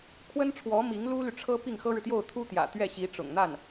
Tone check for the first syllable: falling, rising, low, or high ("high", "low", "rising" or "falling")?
high